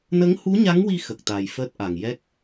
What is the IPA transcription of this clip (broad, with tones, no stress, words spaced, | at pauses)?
nə˧˥ŋhu˧˥ɲa˧˥ŋwi˧ xə˨˩k̚t̪a˨˩j fəː˦˥t̚ʔa˨˩ŋ jɛ˦˥k̚